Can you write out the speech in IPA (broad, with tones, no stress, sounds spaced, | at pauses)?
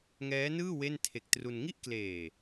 ŋ ɛː˦˥ n ɯː˥˩ w e˥˩ n tʰ e˨˩ k̚ t r u˧ n ŋ i˦˥ ʔ k l eː˨˩